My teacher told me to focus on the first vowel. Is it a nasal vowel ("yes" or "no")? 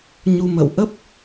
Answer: no